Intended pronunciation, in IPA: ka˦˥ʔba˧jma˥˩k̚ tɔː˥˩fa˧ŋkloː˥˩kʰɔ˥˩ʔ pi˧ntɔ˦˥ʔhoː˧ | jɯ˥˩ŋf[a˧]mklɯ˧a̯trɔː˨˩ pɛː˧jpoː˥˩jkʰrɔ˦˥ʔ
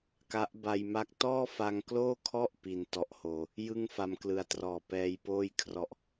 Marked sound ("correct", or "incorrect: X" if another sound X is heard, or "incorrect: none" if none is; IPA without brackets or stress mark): correct